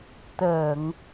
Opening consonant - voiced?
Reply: no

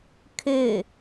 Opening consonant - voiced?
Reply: no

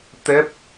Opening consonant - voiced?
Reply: no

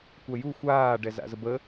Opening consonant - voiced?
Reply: no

